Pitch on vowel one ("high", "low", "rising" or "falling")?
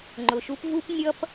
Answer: low